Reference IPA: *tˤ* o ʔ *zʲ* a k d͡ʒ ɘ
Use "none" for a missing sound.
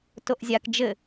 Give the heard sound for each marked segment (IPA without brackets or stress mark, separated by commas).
t, zʲ